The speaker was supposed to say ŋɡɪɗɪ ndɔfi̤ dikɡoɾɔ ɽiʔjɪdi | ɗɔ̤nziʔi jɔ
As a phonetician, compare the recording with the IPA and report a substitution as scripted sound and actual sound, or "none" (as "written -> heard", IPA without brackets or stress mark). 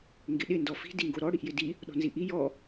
k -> ŋ